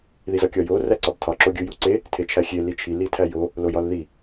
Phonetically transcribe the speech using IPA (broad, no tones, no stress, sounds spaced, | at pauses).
ð i z ɒ kʲ ɒ j o r æ ǀ ɒ b tʰ ɒ ǁ o ɡʲ u j u ǀ e | tʰ e t͡ʃʰ æ xʲ e l i t͡ʃʰ i l i tʰ æ j o | l o j ɒ l ð i